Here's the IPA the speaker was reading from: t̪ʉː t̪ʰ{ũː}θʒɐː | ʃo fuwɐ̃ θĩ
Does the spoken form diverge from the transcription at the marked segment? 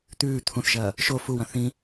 yes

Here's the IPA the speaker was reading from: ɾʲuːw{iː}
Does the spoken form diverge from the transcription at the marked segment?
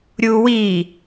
no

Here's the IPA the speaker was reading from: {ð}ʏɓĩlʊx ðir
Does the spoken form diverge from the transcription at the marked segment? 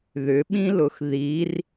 no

